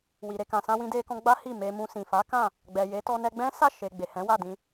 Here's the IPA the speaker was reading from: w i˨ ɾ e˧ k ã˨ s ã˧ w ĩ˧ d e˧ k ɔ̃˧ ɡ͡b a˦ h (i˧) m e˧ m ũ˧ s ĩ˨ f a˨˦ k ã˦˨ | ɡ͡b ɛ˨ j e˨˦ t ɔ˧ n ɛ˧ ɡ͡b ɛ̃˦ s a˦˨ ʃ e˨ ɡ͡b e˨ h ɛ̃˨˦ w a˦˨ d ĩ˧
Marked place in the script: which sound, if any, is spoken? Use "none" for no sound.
i˦˨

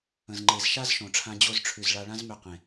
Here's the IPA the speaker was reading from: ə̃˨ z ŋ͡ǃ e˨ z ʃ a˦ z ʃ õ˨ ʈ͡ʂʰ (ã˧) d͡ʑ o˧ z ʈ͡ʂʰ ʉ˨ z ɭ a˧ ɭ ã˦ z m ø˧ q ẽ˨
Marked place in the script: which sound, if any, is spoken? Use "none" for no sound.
ã˧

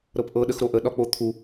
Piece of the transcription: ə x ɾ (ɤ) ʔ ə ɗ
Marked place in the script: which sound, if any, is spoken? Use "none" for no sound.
o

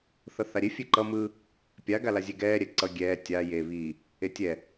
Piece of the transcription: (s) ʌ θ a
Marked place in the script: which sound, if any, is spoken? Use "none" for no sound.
θ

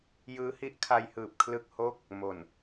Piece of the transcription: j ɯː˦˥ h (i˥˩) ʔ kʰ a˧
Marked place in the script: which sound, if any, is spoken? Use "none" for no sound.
i˦˥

